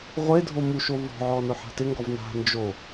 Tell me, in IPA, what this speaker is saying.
ʁʷe dʱomuʃo vɔ̤ʕɔ nʊħa̤tɪŋɡɔv na̤ nd͡ʒo

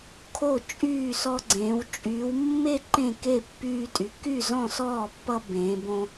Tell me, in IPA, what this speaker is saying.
kʰo˥˨t͡ʃʼyː˥˨sɔ˦ɡ͡ǀẽː˨˦w t͡ʃʼyː˨˦wmːe˥˨ ǃẽ˥˨ke˥˨pːyː˦tʼy˨˦ ky˥˨zɔ̃˥˨sɔː˥˨pːʌ˦ bẽː˨˦bõ˦

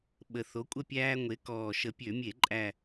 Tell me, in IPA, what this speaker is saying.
ɓə˨˩θo˨˥kʷʼə˥˨pʲæː˦ ŋʷe˨˥kɔː˨˩ ʃə˨˩pʲø˧˩˧mʲe˧˩˧ǃʼæ˨˩

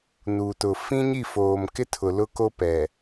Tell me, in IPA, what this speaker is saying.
nuː˨tʊ˨ fĩ˦ɲi˦˨foː˨mkɪ˦ tʰʊ˨lʊ˦ko˦pɛ˨

